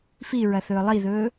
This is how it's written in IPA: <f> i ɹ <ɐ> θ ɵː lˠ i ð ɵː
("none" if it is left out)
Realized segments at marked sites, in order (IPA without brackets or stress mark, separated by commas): f, ɐ